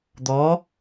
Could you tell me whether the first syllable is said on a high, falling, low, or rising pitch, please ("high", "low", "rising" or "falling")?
rising